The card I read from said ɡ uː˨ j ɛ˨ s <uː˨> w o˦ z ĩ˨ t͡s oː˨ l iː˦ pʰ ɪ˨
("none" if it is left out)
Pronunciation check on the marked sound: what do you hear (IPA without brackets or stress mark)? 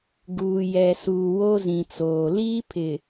uː˨